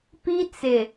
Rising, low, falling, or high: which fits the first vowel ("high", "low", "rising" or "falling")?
high